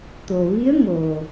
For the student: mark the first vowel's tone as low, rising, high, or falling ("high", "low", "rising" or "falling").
low